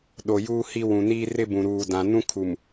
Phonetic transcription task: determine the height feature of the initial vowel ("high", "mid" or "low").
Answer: mid